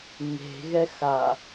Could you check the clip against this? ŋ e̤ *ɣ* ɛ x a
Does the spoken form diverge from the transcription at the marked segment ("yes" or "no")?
no